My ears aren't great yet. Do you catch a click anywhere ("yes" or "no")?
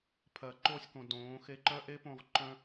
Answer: yes